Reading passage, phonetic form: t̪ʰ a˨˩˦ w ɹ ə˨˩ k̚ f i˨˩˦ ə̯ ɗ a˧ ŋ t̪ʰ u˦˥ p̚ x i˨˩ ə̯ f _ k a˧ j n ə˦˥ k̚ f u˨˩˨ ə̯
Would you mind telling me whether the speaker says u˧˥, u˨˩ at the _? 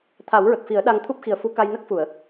u˧˥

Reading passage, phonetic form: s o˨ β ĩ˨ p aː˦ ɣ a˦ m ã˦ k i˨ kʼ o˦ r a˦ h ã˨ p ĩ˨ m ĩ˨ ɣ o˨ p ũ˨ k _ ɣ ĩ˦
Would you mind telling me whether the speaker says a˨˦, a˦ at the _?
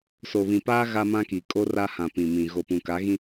a˨˦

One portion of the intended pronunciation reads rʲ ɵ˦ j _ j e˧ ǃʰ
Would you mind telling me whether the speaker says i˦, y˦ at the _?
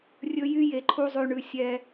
y˦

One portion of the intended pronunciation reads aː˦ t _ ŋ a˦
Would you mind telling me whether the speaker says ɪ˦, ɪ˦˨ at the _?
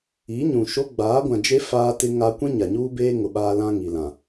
ɪ˦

